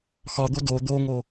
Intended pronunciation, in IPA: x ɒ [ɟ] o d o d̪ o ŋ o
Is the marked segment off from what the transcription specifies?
yes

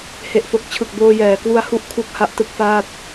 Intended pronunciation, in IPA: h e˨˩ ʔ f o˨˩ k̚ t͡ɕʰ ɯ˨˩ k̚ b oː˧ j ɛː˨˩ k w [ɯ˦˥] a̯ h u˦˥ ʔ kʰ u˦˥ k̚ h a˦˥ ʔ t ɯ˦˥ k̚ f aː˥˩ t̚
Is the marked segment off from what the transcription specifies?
yes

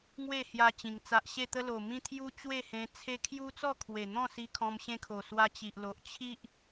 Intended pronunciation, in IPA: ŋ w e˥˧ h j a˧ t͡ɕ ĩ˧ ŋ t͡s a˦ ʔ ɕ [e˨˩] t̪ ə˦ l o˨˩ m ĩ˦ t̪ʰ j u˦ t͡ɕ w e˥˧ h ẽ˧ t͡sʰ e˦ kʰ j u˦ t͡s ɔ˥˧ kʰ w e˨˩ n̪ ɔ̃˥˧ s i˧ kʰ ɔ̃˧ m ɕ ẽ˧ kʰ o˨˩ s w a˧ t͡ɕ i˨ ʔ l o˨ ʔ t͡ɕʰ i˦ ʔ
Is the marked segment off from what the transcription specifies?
yes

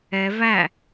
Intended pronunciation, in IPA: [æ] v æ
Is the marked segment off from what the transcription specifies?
yes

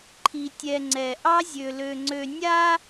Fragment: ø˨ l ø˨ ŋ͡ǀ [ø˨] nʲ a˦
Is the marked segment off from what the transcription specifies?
no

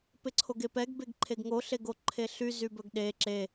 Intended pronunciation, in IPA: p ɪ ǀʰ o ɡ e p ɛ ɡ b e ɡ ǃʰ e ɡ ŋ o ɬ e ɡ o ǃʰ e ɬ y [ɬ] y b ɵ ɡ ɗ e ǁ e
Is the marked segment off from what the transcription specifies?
yes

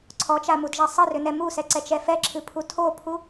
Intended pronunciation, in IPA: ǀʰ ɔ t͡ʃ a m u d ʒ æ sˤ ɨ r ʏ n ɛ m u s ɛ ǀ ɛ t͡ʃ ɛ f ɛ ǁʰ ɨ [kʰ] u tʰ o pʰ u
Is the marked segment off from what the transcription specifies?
yes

